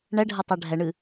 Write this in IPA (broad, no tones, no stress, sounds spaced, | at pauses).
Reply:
ɳ ɛ ɖʱ ɛ tˤ æ ɖʱ ɛ ɳ ɨ